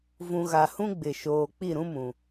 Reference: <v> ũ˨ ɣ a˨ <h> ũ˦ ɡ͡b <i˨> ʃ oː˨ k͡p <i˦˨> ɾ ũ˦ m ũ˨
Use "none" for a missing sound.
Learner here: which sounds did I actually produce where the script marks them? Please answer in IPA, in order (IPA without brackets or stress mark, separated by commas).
v, h, ɪ˨, i˦˨